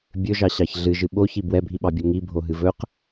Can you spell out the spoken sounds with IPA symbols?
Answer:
bʲ ɵ ʒ ɑ ɕ ɑ ç ɮ ɨ ʒ ɨ ɓ o ç i b w ɛ bʱ i ɓ ɑ bʲ o ŋ i bʱ o ɦ ɨ v ɵ q

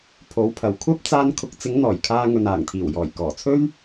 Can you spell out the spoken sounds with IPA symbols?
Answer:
pʰ o˨˥ w pʰ ɐ˨ w kʷʰ ɐ˥ p̚ t͡s aː˥ n kʰ ʊ˨˥ k̚ t͡s ɪ˨˥ ŋ n̪ ɔː˨˩ j kʰ aː˧ ŋ ɵ˨ n aː˨˩ ŋ t̪ʰ iː˨˩ w j ɔː˨˩ j k ɔː˨˩ t͡sʰ ɵ˥ ɥ

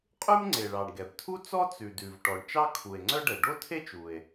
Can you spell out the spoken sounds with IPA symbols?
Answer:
qʼ ʉ˥ m ŋ͡ǀ e˩ ɭ ɑ˩ ɳ ɡ ɛ˩ b tʰ u˥ t͡s ɔ˥ t͡s ʉ˩ d ʉ˩ v ʈ ɔ˩ ɳ t͡ʃ ɑ˥ kʰ u˩ e̯ ŋ͡ǀ œ˥ ɖ ɛ˩ ɖ o˥ tʰ e˥ t͡ʃ u˩ e̯

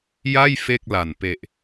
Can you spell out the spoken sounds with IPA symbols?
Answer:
j a˥˩ j f e˥˩ k̚ l a˨˩ n p e˨˩ ʔ

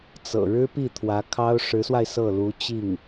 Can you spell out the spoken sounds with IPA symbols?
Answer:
t͡s ɤ̰˨˩ ɻ ɻ̩˥ p i˥˩ t̪ʰ w ä˧˥ kʰ ɑ˥ ʊ̯ ʂ ɻ̩˧˥ s w a˧ ɪ̯ s ɤ˥˩ l u˧˥ t͡ɕ i˥˩ ŋ

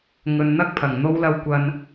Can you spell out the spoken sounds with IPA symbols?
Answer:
ŋ ɵ˨ n n̪ ɐ˥ k̚ pʰ ɐ˨˩ ŋ n̪ o˨˧ w l ɐ˨ w kʷ ɐ˨ n

